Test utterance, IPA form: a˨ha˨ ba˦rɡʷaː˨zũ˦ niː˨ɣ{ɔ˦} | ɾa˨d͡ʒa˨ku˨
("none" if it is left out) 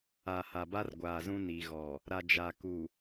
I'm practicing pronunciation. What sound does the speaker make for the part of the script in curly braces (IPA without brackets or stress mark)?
ɔ˨